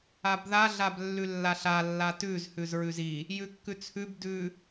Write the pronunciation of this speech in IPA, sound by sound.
a b ð a ɮ a b lː ʉ lː a ɬ a lː a t ʉ z h ʉ z ɹ ʉ z i | j ʉ kː ʉ t͡sʰ ʉ b d ʉ

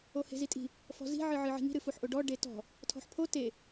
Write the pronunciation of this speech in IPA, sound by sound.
o h e̤ z i tʼ i̤ | f ɔ̤ z i̤ ʕ ɨ ʕ ɨ ʕ i̤ ŋ i̤ ɾ ɨ f u ħ ʔ o ɖ ɔ ɖ e t ɔ̤ | tʰ ɔ̤ ħ pʰ o t e

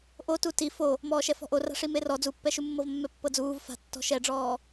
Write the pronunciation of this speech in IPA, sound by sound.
ʔ o t u t i f o | m ɔː ʃ ɛ f ɔ̤ ʔ o r a̤ ʂ i m e r ɔ d͡z u pː ɛ ʃ u mː ɤ v mː ɛ pː ɤ d͡z uː v f a̤ tː ɔ̤ ʃ ɛ ɖ͡ʐ ɔː

